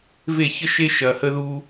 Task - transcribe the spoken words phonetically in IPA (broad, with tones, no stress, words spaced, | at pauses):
ve˦˨çə˦ʃe˦ ʃɐ˧hə˦ðu˦